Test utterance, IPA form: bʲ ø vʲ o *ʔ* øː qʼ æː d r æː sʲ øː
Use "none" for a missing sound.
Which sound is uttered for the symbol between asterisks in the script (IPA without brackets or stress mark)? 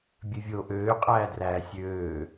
ʔ